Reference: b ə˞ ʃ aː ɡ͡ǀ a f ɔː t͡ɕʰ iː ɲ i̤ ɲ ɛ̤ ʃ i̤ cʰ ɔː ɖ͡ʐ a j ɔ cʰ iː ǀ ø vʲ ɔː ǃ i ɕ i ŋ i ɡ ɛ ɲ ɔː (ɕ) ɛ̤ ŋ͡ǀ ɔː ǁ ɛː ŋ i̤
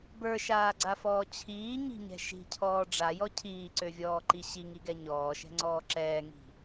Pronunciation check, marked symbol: incorrect: ʃ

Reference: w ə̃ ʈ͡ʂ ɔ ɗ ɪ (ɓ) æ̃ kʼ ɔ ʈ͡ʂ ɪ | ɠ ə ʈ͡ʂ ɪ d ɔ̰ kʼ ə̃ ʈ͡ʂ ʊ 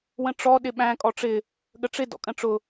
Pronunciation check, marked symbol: correct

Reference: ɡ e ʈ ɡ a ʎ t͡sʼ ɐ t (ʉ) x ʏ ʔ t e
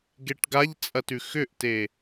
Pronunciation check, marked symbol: correct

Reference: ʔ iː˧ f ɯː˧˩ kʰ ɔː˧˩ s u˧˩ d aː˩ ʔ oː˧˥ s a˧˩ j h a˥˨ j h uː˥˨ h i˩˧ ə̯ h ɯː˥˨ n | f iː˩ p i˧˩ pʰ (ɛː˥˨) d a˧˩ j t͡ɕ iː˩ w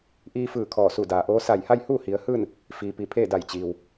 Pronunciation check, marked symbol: incorrect: eː˥˨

